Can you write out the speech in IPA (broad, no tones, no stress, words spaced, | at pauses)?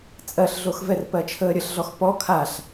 t͡sʼɜɬɮoxvɛr pɜt͡ʃʰəːɾʲəɬɮɔx pɔ kʰaɬ